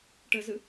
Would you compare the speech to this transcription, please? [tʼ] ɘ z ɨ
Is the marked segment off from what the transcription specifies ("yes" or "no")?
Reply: yes